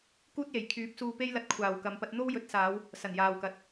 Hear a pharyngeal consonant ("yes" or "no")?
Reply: no